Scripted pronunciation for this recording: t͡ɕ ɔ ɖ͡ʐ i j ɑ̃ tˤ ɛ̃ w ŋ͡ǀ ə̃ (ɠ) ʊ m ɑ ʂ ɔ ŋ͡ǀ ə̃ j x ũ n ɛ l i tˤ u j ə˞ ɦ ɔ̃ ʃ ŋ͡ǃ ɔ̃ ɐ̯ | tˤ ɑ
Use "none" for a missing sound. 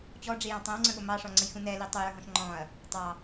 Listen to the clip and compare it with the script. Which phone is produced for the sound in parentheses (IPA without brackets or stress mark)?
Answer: ɠ